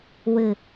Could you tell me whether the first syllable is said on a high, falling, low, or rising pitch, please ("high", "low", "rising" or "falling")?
low